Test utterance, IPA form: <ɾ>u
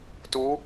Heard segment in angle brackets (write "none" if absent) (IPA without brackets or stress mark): t